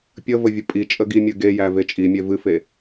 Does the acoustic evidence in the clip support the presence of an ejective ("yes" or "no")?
yes